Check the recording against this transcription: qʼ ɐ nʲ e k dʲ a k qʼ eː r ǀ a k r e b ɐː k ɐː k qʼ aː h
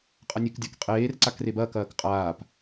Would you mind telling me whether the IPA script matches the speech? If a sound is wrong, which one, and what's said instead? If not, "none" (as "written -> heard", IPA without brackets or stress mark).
h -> p